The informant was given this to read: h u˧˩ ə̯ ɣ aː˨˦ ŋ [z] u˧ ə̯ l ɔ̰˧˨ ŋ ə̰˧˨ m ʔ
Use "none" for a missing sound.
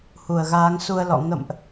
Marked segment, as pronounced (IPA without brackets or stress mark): s